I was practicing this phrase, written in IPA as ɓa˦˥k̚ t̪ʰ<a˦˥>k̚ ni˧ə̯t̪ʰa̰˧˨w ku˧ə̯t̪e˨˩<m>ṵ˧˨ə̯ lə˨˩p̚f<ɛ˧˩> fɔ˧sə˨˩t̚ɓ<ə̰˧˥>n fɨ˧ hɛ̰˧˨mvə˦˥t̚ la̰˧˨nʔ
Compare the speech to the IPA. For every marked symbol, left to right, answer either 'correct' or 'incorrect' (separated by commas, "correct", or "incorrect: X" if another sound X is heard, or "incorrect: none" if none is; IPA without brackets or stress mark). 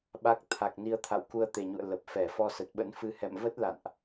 incorrect: a˨˩, incorrect: ɲ, correct, correct